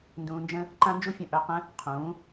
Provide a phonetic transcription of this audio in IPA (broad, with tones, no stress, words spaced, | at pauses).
ndũː˧nd͡ʒə̃˦ | ǃã˦nd͡ʒu˦fʲə̃˦˨ ʔœ˧qə̃˦ | qʰũː˨˦